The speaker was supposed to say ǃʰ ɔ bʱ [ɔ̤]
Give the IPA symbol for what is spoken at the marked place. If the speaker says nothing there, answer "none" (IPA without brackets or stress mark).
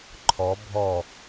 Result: ɔ